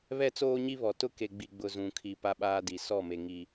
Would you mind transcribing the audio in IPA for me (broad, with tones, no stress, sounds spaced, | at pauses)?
β ɛ˦ t͡s oː˦ ɲ i˦ β ɔ˨ t ʊ˦ k e˨ ɡ͡b i˨ ɡ͡b ʊ˨ z ũ˨ kʰ i˨ p a˦ ɓ aː˦ d i˨ s ɔ˦˨ m e˨ ŋ i˨